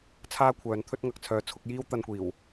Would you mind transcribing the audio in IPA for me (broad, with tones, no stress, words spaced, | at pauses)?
t͡sʰaː˥kʷʰœː˨˧n t̪ʰɵ˥t̚ŋɐ˨k̚t͡sʰœː˧t͡sʰʊ˨˥k̚ jiː˥wt̪ɐ˧nkʷiː˨˩w